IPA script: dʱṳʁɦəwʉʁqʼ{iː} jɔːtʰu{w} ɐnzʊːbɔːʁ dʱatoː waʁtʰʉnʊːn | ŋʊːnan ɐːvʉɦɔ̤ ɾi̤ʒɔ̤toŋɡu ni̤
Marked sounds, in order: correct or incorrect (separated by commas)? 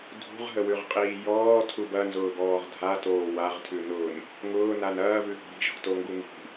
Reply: correct, incorrect